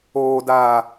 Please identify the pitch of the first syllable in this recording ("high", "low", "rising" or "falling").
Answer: low